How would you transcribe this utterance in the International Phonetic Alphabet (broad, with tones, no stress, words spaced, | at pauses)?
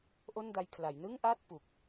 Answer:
ʔo˥˩nda˧jkʰla˩˦j nɯ˥˩ŋʔa˥˩t̚ pu˨˩k̚